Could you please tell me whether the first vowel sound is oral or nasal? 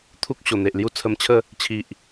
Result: oral